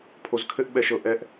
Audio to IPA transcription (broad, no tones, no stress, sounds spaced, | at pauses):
pʰ o z kʰ ɘ ʔ ɓ ɛ ʃ ɤ ʔ ɛ ʔ